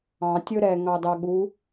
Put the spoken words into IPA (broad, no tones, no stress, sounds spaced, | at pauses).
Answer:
ɑ̃ tʲ ɵ ɾ ɛ ŋ ɑ d ɑ ɠ u